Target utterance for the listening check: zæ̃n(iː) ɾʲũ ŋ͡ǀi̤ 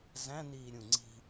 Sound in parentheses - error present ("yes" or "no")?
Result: no